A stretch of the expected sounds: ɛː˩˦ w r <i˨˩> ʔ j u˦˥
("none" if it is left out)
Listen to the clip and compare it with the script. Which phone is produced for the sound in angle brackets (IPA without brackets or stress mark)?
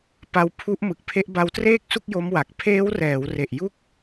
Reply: e˨˩